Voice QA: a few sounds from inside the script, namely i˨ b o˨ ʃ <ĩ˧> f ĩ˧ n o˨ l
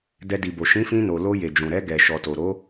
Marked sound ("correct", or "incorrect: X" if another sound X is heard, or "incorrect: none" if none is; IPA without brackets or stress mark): incorrect: ĩ˨˦